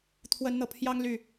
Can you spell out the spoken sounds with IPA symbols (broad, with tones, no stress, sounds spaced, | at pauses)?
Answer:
t̪ʰ w ə˨˦ n n̪ ɤ˨˩ pʰ j ɑ˦ ŋ l y˨˩